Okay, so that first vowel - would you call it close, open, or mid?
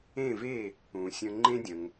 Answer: mid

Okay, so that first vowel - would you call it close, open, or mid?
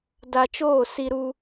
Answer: open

